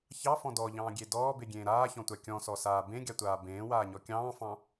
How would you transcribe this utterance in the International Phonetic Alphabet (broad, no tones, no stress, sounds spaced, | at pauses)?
ç ɑ f ɔ̃ d ɔ ʎ ɑ̃ː ɡʲ e d ɔː b e ɡʲ ẽː ɾ aː ç ɔ̃ tʷ a kʲ ɔ̃ s ɔ s aː b ẽ ɡʲ a tʷ aː b ẽː w aː ɲ ɔ kʲ ɑ̃ː f ɑ̃